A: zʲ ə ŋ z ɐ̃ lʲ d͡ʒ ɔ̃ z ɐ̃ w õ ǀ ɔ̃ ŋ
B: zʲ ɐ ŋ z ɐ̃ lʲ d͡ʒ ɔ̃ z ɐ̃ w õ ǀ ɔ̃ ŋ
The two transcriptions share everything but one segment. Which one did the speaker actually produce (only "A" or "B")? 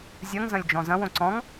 B